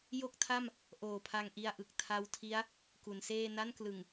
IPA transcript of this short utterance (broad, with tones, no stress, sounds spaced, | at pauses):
j o˥˩ k̚ tʰ a˥˩ m | ʔ oː˨˩ pʰ a˧ ŋ ʔ i˧ a̯ ʔ ɯ˨˩ k̚ tʰ a˦˥ w tʰ i˦˥ a̯ | k u˩˦ n s eː˥˩ n a˥˩ n k l ɯ˨˩ ŋ